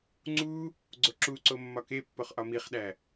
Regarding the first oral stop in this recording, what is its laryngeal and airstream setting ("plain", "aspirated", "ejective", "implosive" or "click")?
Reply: click